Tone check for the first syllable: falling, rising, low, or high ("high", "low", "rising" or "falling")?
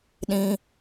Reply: high